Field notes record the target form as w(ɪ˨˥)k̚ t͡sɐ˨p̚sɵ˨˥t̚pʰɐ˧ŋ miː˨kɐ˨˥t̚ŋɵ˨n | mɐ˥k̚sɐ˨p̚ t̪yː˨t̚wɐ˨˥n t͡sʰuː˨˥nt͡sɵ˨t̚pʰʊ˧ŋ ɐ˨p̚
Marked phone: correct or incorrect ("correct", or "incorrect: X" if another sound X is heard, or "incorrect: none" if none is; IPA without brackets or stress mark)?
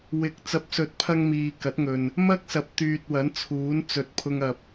correct